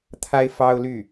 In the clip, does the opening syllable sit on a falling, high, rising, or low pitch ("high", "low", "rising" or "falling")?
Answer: high